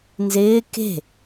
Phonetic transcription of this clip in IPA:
nzɪː ke̤

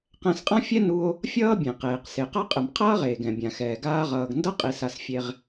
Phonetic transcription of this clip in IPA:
qɛ̃˧sqʼã˥fʲɛ˥nu˧o̯ | fʲʌː˥bʲẽ˩qeː˩q se˩qa˥qʼɯ˩m qʰʌː˥ʁeː˩ɡ ɛ̃˩bʲã˩xɛː˩ ɡaː˧ʁʌː˩ɡndʌ˥ qʼi˩sa˩sfʲe˩ʁ

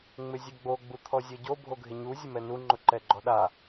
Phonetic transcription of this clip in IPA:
ŋ͡mɪzʲɛɡ͡bo ɡ͡but̪ʰɔzʲɔɟo bʱoɡʱɪɲu zʲʊmɛnu ŋ͡ǃʊǃɛɡ͡ǃɔɗa

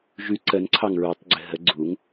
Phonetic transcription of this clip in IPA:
ʒʉ ǀənǀʰɑŋ ɹʉtˤɡ͡ǀɘ ɦə ɡ͡ǀuŋ

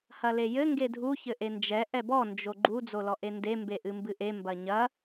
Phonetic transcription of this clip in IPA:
hɐlejɘ ŋɡedʱu çɘʔend͡ʒɛ ʔɛbɔ nd͡ʒoɡ͡ǃu d͡zolɔʔende mbeʔɨmbɨʔe mbɐɲɐ

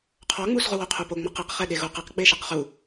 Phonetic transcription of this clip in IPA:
qʰɔŋ͡mus ʁuwoqʰupo ŋ͡mɔqeqχɛ ɗeɣuqɛqɡ͡be ʃɨqχu

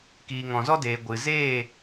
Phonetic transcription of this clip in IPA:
kiː˨ŋɔ̃˨zɔ˦deː˨ ɡʷɨ˨zeː˦˨

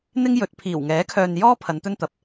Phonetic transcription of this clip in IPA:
n̪ɪ˥ŋ jɵ˨˥t̚ pʰiː˨˩wŋɛː˨˥kʰœː˨n jɔː˥ pʰɐ˨˧nt̪ɵ˥nt̪ɐ˨p̚

